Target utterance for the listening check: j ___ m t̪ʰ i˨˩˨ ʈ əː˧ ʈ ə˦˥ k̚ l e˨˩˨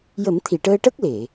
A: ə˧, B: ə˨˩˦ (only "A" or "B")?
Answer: B